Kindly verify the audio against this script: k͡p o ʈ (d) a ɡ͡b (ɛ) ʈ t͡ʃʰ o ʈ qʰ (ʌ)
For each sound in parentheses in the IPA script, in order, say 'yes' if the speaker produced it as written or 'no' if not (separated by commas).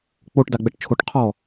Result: yes, yes, no